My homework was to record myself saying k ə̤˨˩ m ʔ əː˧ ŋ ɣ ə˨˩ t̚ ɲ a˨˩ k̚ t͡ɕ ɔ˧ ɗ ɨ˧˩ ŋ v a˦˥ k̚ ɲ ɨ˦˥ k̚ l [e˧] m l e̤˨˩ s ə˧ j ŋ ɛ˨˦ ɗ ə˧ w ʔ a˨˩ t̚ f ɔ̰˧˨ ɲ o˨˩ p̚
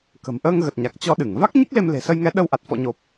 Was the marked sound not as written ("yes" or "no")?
no